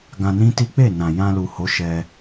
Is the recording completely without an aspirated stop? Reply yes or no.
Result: yes